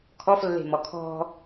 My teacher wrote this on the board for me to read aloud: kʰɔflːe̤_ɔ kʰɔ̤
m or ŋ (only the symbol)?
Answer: m